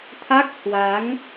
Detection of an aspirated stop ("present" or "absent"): present